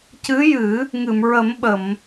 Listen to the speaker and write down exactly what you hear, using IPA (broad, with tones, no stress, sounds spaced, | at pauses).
c ɨ˧˥ j ɨ˨˩˦ | ŋ ɨ˨˩˨ m ɹ ə˨˩˦ m ɓ ə˨˩˨ m